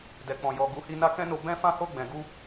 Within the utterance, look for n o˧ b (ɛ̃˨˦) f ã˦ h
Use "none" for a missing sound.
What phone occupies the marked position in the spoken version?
ɛ̃˦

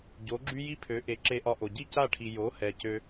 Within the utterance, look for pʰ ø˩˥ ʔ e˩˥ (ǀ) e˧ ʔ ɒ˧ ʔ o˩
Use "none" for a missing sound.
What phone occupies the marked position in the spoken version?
ǁ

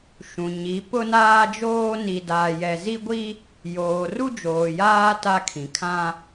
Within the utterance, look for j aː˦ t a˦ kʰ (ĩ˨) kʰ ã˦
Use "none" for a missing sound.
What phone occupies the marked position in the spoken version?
ĩ˨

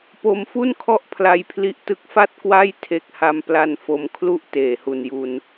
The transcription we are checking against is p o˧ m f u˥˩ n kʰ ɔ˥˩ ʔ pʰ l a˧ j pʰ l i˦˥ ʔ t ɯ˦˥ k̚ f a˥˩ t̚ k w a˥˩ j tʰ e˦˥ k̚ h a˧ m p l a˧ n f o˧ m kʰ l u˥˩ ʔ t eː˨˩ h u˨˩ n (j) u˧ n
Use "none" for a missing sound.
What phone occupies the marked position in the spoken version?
j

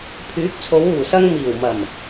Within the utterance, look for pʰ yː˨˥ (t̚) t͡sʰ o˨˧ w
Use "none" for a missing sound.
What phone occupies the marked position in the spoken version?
k̚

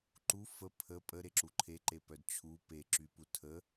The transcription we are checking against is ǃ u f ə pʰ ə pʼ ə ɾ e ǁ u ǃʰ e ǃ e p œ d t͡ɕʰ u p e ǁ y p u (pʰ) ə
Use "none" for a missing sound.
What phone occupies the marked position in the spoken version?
tʰ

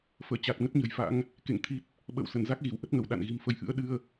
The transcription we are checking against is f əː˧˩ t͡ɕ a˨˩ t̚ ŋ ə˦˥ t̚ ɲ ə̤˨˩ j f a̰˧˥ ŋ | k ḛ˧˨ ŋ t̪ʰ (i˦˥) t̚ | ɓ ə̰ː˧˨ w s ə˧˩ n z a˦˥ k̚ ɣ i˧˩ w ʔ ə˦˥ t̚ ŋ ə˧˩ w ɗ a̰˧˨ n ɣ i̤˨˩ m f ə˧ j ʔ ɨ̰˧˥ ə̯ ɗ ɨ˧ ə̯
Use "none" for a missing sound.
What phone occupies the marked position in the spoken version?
i˦˥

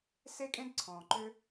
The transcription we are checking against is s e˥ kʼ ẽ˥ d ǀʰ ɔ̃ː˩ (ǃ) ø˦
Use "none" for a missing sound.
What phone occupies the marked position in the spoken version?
ǃ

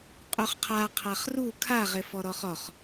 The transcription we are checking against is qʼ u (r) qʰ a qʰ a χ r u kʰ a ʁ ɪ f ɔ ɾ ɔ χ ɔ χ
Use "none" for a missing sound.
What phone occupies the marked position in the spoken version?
χ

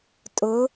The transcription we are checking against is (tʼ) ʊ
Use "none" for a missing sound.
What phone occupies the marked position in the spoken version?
tʼ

